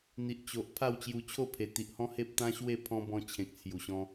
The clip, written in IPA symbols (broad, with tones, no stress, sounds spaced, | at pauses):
n̪ i˨ ʔ t͡ɕ o˨ ʔ pʰ a˥˧ w t͡ɕ j u˧ t͡ɕʰ o˥˧ pʰ e˨˩ t̪ i˨ ʔ h ɔ̃˦ h e˦ p̚ t̪ ã˦ ɕ w e˥˧ pʰ ɔ̃˧ b ɔ̃˧ t͡ɕʰ ẽ˨ k̚ t͡sʰ j u˨˩ ɕ ɔ̃˧